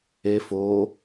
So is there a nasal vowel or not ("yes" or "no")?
no